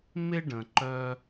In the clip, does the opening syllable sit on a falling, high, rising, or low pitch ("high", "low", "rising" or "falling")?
high